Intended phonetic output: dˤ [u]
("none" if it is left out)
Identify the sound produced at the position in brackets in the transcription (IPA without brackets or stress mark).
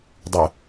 u